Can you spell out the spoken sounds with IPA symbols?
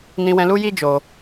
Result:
nĩ˧wɛ̃˧ lu˦ji˦d͡ʒo˧

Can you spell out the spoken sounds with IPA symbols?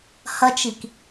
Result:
hɐt͡ʃik

